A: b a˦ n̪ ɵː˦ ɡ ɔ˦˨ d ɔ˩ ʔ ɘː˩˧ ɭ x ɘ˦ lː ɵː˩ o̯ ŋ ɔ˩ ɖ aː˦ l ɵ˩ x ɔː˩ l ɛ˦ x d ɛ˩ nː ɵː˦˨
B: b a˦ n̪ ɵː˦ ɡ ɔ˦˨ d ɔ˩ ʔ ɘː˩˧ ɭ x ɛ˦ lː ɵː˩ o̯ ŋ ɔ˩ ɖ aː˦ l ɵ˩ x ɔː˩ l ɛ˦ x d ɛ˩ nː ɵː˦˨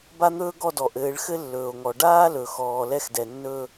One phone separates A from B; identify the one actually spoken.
A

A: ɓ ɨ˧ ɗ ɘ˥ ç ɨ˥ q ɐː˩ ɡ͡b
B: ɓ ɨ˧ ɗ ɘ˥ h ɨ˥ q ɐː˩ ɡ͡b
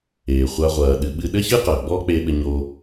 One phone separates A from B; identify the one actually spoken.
A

